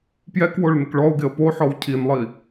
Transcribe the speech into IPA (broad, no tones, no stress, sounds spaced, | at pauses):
p j ɛ k w o ɭ n̪ ə k ɭ ɔ ʊ̯ ɡ ɪ ə̯ p o ħ ɔ w cʰ i n lˠ i